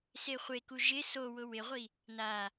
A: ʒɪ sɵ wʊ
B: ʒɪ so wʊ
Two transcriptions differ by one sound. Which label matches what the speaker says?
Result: B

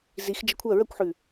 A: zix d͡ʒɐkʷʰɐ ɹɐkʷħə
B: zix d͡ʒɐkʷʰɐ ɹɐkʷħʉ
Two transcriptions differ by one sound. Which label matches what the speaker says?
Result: B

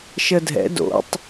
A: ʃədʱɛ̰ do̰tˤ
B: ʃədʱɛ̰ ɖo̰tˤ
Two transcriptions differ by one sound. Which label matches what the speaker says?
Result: A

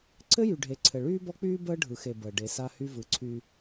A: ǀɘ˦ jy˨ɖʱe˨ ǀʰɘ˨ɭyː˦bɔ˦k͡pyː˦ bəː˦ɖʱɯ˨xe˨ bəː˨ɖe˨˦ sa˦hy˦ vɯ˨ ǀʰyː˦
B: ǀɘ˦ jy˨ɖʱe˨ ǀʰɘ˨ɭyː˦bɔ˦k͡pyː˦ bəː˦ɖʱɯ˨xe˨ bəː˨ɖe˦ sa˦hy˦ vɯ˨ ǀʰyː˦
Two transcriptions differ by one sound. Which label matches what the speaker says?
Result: A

